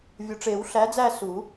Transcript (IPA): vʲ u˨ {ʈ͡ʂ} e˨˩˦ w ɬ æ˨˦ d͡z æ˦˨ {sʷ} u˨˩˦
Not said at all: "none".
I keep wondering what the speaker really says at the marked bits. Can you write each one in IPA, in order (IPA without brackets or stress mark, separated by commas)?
ʈ͡ʂ, s